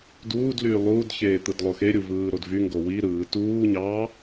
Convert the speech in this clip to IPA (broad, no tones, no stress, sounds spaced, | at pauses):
d uː d l yː lˠ uː d ç eː t̪ ɯ d lˠ o x e ɾʲ u v ɯː ɾ o d v y ŋ ɡ o w i ɾ ɯː t uː ɲ ɑ